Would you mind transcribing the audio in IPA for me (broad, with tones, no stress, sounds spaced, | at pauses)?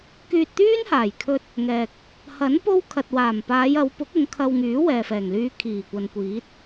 k yː˧ t̚ t̪ yː˥ n h aː˨˩ j kʰ ɵ˧ t̚ | ŋ ɛː˨ k̚ | h ɐ˨˥ n p o˥ w kʰ ɐ˨ t̚ w aː˨˩ m p aː˨˧ j ɐ˨˧ w p ʊ˨˥ k̚ ʊ˨˧ ŋ kʰ ɐ˧ w ŋ yː˨˥ w ɛː˨ f ɛː˨˩ ŋ l yː˧ kʰ iː˨˩ kʷ ɐ˨ n kʷ iː˨˥ t̚